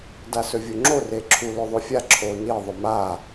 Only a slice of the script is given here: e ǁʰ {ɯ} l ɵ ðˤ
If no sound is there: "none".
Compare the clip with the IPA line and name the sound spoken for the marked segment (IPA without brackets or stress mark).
u